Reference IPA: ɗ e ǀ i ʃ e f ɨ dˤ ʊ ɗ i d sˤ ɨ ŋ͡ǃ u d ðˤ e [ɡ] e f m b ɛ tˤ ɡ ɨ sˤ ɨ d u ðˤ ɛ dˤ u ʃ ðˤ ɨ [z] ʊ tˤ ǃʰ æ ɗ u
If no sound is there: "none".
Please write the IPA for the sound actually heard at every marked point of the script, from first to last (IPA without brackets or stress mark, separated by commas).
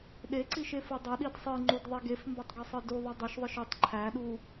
ɡ, ʃ